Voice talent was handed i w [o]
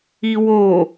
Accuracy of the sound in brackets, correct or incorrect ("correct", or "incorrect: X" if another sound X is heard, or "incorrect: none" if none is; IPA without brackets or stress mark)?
correct